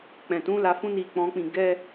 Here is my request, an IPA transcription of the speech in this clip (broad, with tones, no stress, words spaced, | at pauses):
k͡pɛ̃˨tũ˨˦ la˧fũ˦ni˧ k͡pɔ̃˦k͡pĩ˦˨ ɡɛ˧